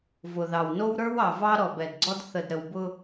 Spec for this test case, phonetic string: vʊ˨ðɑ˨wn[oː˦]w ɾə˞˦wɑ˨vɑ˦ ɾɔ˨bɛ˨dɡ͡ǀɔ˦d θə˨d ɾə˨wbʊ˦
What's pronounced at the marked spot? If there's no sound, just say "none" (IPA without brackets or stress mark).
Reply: o˦